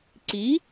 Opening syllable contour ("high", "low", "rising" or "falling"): rising